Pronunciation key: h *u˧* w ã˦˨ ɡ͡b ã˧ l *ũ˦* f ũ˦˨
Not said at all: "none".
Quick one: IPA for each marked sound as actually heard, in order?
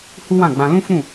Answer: u˦, ũ˦

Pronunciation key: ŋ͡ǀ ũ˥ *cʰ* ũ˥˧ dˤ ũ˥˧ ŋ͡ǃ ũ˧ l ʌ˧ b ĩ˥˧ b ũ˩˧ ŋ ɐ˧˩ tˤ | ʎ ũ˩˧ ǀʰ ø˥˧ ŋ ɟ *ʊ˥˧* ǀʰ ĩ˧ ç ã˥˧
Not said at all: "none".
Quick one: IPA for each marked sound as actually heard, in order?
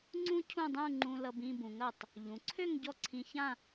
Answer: cʰ, ɔ˥˧

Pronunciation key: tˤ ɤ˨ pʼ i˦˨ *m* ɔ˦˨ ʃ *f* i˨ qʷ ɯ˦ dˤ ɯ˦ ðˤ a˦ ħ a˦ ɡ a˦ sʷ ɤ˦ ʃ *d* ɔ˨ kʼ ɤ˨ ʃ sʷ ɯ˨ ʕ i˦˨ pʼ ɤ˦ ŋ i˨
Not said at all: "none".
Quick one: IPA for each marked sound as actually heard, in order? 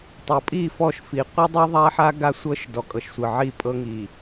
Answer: f, f, d

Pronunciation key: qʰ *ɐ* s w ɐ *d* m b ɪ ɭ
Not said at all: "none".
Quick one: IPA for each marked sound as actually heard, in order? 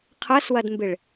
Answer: ɐ, d

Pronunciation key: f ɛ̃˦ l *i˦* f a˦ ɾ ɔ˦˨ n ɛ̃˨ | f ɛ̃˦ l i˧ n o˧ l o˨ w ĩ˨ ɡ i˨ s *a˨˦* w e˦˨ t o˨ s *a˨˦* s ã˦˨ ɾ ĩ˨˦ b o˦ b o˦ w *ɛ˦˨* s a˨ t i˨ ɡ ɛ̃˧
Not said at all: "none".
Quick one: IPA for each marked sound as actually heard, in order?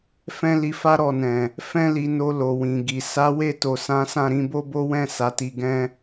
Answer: i˧, a˨˦, ã˨˦, ɛ̃˦˨

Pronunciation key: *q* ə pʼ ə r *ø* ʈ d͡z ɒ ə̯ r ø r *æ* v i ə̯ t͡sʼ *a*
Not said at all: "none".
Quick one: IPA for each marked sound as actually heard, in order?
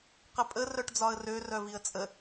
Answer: q, œ, œ, ə

